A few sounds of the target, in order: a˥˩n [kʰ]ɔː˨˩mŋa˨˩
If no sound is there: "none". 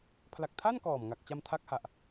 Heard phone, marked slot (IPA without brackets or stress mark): k